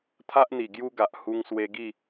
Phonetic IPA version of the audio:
t̪ʰa˦ʔn̪i˨˩ ɡju˦ɡa˨ʔ hu˧ŋswe˧ɡi˥˧

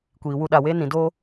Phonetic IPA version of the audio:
kʷiː˨wu˧ɗa˨we˦ nĩ˨do˦

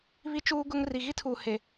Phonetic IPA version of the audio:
βi˦t͡ʃuː˦ɡʊ˦ŋ ri˨ɣi˦tʰuː˨he˨

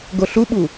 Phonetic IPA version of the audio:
ɡoɬuɓu

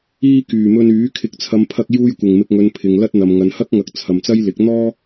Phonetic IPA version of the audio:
iː˧ kyː˨˩mɵ˧nyː˨˥ kʰɪ˨k̚t͡sʰɐ˨˧mpʰɐ˧k̚ juː˧jkʷɪ˨˩ŋmɪ˨k̚ ŋɵ˨˧npʰɪ˨ŋlɐ˥t̚ n̪ɐ˨mŋɐ˨˧n hɐ˥k̚ŋɐ˨˥k̚ t͡sʰɐ˨mt͡sɐ˥jlɪ˨˥k̚ n̪ɔː˥

